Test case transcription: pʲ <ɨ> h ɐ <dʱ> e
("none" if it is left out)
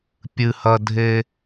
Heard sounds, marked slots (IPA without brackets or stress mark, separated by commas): ɨ, dʱ